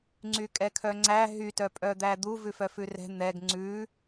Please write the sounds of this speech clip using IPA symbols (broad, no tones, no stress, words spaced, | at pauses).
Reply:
ŋ͡ǀykʼɛkʰœŋ͡ǀæ ɦytœpʼœd̪æ d̪uvʉ fœfʉrɛ̤ n̪ɛɡ ŋ͡ǀʉ